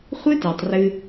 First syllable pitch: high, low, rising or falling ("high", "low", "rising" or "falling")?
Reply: high